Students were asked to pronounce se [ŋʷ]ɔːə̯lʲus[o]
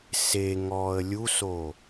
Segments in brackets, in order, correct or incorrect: incorrect, correct

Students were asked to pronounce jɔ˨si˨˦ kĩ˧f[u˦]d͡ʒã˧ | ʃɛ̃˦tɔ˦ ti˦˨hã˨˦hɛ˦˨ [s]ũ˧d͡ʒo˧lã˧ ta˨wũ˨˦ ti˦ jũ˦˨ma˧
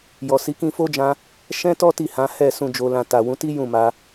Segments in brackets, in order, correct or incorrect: incorrect, correct

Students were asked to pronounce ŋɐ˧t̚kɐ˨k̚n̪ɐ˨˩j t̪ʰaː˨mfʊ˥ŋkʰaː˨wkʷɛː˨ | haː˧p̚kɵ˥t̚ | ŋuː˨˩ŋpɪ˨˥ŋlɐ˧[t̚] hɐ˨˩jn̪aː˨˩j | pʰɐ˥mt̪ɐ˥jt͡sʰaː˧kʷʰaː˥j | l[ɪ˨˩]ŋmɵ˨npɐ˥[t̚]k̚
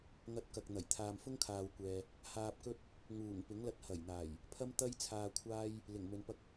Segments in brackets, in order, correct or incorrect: correct, correct, incorrect

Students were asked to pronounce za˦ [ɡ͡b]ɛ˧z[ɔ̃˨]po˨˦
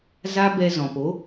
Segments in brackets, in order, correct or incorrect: incorrect, correct

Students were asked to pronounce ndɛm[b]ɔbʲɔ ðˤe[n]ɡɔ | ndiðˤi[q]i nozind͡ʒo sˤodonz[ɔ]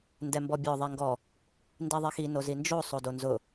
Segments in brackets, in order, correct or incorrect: correct, incorrect, incorrect, incorrect

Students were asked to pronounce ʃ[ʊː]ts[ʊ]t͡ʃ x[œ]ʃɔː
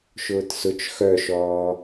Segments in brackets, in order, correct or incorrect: correct, correct, correct

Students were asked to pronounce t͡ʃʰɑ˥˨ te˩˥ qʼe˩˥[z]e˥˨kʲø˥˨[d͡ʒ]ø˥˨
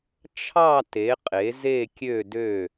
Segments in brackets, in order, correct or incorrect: correct, incorrect

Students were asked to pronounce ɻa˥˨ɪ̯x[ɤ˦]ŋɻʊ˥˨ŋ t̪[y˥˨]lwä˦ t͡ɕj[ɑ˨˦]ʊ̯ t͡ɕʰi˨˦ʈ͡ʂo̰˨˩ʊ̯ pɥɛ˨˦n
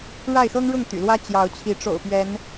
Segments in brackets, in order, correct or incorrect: correct, incorrect, correct

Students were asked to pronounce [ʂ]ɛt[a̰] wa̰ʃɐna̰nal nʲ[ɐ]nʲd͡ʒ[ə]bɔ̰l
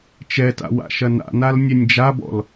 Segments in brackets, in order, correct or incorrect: incorrect, correct, correct, incorrect

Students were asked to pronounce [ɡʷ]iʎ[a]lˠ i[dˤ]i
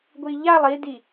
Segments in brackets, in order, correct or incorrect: correct, correct, incorrect

